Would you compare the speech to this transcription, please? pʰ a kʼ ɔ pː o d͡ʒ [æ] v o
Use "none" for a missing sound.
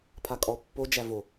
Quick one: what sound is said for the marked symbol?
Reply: æ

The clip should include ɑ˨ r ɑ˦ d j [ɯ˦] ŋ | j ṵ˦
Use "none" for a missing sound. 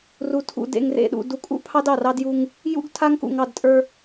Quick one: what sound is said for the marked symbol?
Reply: u˦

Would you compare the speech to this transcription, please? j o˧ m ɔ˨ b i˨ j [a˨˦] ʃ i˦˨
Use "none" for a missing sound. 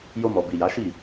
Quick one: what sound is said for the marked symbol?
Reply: a˨˦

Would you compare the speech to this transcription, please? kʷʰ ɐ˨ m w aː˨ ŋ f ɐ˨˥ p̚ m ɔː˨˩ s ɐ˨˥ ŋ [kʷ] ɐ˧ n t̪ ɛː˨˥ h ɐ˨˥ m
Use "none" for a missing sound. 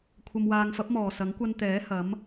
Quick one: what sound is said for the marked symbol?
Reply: kʷ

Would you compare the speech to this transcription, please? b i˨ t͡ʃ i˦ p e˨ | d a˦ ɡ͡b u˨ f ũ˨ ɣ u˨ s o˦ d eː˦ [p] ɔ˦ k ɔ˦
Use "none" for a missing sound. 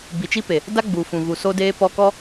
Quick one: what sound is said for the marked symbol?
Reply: p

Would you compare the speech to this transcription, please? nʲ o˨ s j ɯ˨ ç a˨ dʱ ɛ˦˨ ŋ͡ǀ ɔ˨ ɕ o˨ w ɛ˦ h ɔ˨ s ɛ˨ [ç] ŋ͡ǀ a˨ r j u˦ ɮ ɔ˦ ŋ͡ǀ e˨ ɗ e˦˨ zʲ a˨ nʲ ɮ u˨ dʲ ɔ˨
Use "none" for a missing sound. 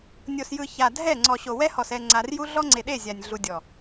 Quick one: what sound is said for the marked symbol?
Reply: none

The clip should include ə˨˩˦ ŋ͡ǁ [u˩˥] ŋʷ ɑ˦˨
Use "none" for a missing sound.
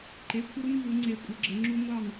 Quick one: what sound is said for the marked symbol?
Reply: u˦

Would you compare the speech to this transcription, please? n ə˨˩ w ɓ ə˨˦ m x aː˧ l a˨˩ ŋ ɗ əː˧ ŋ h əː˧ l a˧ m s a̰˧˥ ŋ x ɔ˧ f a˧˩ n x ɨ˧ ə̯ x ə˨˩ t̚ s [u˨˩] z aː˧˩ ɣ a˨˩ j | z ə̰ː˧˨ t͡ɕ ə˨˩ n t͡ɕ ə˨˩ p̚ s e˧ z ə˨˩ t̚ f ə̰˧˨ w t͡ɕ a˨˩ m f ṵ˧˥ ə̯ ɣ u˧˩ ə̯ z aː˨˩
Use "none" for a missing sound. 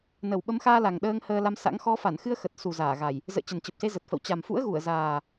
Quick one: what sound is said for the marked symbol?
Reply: u˨˩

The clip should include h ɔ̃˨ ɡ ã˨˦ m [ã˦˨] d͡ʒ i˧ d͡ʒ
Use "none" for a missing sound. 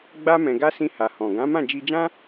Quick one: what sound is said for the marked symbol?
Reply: ã˦˨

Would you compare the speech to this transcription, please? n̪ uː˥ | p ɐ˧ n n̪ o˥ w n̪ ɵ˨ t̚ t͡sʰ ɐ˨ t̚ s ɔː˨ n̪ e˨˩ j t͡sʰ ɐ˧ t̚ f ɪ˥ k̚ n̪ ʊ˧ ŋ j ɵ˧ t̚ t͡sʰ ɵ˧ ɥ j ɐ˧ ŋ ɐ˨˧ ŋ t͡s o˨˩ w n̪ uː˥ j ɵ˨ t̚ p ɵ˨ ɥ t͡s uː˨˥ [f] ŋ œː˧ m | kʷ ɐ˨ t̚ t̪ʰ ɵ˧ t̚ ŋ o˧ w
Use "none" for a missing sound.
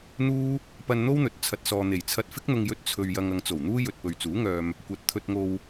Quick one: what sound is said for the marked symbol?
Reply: none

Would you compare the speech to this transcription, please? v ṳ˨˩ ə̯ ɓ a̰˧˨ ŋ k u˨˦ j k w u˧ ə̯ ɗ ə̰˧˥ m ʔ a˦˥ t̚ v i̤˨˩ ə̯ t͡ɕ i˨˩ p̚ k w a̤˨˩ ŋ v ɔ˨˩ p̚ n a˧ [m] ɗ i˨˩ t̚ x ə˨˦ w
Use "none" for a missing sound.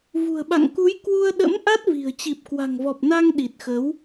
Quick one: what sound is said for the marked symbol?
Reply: ŋ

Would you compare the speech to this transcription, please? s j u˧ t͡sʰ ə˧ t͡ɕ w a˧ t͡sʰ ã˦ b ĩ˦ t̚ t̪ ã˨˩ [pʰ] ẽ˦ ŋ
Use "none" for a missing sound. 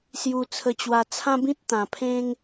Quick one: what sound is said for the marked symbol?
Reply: pʰ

